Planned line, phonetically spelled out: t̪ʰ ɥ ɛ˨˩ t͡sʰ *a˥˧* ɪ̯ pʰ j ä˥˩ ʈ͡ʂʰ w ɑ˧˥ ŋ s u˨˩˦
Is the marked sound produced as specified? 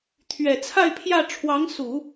yes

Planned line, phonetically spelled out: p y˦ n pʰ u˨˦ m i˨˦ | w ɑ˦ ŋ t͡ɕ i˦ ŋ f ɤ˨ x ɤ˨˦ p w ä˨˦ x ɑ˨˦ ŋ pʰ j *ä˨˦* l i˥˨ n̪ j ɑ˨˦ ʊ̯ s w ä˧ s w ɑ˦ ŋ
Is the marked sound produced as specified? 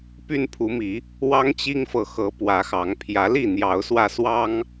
yes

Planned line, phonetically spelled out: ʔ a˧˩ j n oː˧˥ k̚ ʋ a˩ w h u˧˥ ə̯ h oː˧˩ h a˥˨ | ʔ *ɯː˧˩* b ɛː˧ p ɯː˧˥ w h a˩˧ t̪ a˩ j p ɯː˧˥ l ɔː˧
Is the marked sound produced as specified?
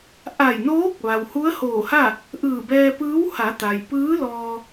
yes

